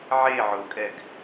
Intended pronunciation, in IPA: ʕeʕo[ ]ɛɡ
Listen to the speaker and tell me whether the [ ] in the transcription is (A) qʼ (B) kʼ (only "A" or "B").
B